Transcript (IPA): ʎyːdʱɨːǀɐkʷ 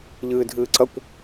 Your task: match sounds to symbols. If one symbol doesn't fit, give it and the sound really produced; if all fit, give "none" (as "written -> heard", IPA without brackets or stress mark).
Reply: yː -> ɨː